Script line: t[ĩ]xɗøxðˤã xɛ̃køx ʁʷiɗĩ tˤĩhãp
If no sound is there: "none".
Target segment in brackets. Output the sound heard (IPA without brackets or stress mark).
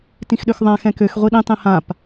ĩ